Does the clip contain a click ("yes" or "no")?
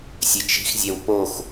no